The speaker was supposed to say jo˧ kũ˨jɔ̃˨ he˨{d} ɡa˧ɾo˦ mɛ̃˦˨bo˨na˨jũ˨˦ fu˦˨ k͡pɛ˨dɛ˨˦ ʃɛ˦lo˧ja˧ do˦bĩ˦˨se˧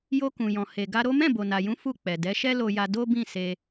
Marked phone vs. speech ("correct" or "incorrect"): incorrect